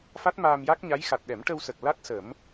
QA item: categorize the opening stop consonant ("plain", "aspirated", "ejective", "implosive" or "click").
plain